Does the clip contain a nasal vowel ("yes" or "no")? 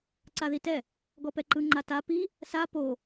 no